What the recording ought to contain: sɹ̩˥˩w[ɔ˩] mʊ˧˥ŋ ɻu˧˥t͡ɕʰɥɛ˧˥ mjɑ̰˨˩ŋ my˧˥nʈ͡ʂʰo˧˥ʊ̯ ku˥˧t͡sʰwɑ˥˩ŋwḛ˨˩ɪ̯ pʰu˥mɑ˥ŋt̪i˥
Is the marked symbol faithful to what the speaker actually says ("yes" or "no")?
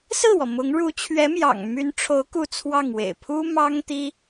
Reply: yes